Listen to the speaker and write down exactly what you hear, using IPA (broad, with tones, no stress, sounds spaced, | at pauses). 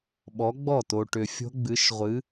ɓ ɔ˨˥ ɡ͡b ɔ˥˩ t o˨ ʈ ʏ˨ fʲ o̤˦˥ ɡ͡b ɨ˨˥ ʃ ʁʷ ɨ˨˥